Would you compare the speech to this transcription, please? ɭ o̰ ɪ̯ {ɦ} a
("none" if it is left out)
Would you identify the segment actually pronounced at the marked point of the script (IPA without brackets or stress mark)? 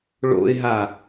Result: ɦ